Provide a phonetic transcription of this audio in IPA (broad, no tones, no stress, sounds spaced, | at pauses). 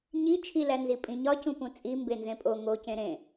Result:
ɲ i t͡ʃʰ i l æ n z i pʼ ĩ ɲ ɒ c ũ p ũ t͡sʼ i m b e n z ẽ pʼ o ŋ o c ẽ ɾ ẽ